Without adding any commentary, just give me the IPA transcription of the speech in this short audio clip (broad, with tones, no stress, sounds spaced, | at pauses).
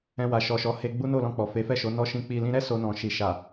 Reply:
ɛ̃˧ w a˨ ʃ ɔ˨ ʃ ɔ˨˦ h e˧ ɡ͡b u˦ n o˦˨ l ɔ̃˧ k͡p ɔ˨ f e˨˦ f ɛ˦˨ ʃ o˨˦ n ɔ˧ ʃ ĩ˧ k͡p i˨ l ĩ˧ ɾ ɛ˦ s o˧ n ɔ̃˨ ʃ i˨ ʃ a˨